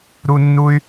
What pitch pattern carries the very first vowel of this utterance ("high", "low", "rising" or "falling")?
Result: high